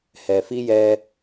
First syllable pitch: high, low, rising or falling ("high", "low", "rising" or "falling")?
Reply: low